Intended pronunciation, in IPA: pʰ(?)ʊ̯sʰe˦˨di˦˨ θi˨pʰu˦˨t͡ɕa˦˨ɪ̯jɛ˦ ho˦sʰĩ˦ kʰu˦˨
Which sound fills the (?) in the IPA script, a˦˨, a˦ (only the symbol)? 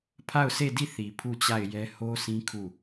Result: a˦˨